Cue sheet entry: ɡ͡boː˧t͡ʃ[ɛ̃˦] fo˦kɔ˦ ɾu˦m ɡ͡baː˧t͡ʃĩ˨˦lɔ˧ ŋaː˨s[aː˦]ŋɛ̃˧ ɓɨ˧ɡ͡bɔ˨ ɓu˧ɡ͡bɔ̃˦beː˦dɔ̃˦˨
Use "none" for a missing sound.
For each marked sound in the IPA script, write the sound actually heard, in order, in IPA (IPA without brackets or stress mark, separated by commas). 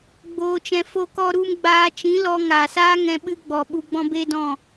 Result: ɛ̃˧, aː˦